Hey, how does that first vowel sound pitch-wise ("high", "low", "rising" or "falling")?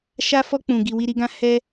high